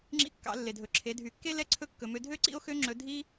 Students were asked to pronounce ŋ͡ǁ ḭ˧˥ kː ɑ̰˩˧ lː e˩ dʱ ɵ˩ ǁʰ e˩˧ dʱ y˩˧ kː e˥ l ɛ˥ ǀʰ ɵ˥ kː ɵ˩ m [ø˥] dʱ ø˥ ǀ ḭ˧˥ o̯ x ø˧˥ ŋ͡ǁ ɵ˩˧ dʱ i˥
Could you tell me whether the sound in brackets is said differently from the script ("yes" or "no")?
yes